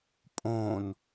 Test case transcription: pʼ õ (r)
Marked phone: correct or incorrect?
incorrect: n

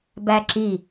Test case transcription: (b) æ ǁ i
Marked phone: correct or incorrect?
correct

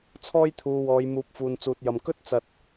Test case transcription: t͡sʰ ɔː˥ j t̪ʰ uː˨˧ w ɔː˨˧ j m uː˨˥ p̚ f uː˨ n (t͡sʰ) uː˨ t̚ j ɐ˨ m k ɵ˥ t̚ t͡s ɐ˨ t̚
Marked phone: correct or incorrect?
incorrect: t͡s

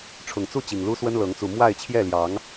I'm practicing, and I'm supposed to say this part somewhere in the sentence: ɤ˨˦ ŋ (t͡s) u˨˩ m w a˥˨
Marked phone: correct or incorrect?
correct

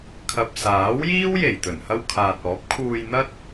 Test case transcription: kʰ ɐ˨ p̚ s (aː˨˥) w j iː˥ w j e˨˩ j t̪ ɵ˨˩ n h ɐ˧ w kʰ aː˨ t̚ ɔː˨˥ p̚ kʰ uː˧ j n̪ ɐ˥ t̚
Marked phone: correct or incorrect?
correct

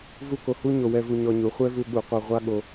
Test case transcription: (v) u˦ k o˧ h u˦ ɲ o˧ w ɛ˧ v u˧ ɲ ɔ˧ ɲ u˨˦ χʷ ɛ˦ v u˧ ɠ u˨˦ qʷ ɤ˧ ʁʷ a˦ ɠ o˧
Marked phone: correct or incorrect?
correct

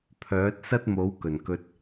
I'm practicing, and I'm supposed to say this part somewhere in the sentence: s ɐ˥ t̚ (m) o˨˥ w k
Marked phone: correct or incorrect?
correct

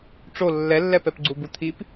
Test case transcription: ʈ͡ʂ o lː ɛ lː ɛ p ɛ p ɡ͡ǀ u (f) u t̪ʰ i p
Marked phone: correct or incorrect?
incorrect: b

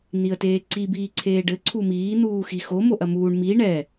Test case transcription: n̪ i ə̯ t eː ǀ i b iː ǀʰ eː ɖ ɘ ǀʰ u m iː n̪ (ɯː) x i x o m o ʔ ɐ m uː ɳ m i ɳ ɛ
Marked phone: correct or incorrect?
incorrect: uː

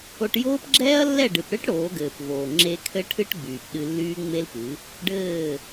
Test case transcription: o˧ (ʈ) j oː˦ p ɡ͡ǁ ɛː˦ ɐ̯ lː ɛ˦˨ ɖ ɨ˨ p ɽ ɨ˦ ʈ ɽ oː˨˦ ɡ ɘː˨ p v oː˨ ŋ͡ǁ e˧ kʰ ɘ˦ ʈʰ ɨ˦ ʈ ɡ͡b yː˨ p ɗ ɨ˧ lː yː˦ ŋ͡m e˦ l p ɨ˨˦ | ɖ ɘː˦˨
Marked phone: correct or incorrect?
correct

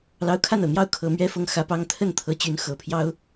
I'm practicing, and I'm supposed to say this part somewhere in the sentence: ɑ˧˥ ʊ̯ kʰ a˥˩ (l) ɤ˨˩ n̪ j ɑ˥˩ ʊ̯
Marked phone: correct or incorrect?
incorrect: n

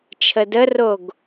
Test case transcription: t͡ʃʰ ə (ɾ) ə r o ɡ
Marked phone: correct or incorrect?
incorrect: d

